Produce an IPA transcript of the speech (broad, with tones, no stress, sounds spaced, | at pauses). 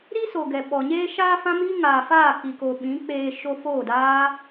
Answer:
ɾ i˦ s o˨ ɡ ɛ˨ ɓ ɔ˨ ɲ eː˧ ʃ aː˧ f ã˦ m iː˦ ŋ aː˨ f aː˦˨ k i˨ k oː˨ ɓ ĩ˨˦ k͡p eː˧ ʃ o˧ f oː˦˨ d aː˦